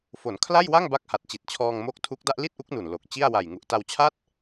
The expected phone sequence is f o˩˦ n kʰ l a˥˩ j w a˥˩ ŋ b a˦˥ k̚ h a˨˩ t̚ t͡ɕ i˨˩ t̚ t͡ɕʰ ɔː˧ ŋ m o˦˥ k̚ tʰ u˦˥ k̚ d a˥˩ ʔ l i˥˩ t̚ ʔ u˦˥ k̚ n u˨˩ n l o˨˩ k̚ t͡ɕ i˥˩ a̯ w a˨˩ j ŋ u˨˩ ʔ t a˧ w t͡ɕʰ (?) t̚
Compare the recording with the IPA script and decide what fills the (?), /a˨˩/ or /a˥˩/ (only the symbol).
a˥˩